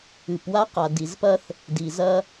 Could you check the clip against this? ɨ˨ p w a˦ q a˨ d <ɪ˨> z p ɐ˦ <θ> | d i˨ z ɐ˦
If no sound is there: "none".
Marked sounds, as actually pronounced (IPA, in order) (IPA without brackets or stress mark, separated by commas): i˨, θ